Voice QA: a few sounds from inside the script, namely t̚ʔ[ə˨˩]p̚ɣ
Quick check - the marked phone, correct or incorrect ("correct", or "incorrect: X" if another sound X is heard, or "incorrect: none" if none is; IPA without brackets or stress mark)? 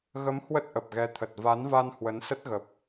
correct